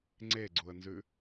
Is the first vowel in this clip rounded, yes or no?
no